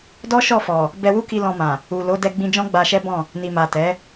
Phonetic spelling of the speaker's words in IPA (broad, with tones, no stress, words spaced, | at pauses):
dɔ˦ʃɔ˦˨ fɔ˨ | bɛ˧wu˦ki˧ lɔ̃˧mã˨ | u˨lo˨˦ dɛ˧ɡ͡bĩ˧d͡ʒɔ̃˦ ɡ͡ba˧ʃɛ˦bɔ̃˦˨ | ni˨ma˨ tɛ˨˦